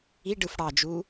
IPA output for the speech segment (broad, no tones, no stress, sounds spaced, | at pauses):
i ɖ ɯ f ɽ ɑ d͡ʒ u